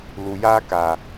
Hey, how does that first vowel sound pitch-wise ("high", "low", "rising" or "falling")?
low